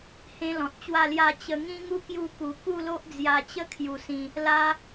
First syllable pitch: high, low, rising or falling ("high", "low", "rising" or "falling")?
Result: high